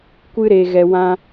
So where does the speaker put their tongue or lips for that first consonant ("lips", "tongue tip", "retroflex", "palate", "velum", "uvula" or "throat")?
velum